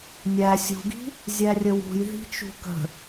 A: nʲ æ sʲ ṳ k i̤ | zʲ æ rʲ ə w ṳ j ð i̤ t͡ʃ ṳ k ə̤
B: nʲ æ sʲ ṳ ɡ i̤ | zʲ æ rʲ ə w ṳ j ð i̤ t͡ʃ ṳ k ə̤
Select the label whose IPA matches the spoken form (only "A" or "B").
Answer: B